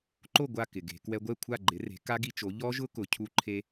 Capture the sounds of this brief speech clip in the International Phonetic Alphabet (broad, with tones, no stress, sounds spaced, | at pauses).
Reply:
ǃ o˥˩ ɡʷ a˥˩ k ɪ˩ ɡ e̤˩˧ k w ɛ˧ ɡʷ ɛ˥˩ kʷʰ a˥˩ ɡ͡ǃ ɪ˩˥ r e̤˩˥ k a˦˥ ɡ i˧ t͡ʃ o˩˥ ʎ ɔ˦˥ ʒ ʊ˦˥ k ʊ˩˧ cʰ u˧ ǃʰ e˧